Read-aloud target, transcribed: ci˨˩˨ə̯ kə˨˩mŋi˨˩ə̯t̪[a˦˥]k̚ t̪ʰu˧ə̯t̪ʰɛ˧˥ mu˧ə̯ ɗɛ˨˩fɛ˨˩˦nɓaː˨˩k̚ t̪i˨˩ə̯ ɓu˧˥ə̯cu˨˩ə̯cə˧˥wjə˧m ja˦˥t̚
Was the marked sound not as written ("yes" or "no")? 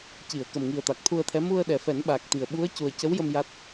yes